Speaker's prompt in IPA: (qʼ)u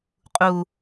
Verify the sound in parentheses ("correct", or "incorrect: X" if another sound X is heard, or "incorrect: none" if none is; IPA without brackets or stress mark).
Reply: correct